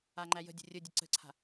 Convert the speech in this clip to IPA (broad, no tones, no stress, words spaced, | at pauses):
aŋ͡ǃæjə̤dʲə̤ rʲə dʲəǀə̤ǀʰa̤